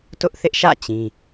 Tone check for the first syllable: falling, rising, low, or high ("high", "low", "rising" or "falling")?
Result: high